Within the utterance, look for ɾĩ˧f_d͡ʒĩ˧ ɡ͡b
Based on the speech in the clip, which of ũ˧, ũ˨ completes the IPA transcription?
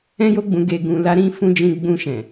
ũ˧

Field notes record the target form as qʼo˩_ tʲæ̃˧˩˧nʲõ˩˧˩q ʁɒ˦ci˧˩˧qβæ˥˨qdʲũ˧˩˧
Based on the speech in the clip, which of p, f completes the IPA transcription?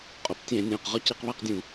p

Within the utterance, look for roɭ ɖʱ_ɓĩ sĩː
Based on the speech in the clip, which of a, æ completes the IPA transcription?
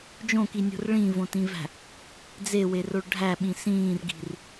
æ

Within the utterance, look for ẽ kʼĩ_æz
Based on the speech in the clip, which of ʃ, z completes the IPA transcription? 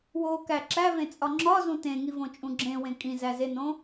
z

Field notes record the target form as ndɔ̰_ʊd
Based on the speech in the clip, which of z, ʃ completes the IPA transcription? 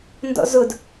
z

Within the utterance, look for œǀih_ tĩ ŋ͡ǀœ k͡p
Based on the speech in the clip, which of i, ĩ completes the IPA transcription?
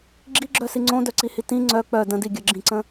i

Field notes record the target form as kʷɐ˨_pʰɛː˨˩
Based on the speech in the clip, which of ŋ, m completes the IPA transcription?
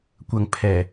ŋ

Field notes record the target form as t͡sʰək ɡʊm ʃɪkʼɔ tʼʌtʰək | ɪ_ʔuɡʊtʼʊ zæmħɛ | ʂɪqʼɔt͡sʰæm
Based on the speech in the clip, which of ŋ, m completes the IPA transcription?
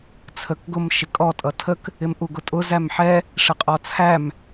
m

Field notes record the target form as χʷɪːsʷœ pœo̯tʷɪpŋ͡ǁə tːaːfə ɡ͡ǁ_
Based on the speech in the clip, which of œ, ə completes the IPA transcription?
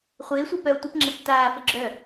œ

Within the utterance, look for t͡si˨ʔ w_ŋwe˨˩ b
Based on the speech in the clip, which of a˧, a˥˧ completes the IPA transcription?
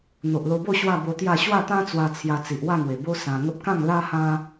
a˥˧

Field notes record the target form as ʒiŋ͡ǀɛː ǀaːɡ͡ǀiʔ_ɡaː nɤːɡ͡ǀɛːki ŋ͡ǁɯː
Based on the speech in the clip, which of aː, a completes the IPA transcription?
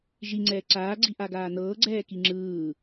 a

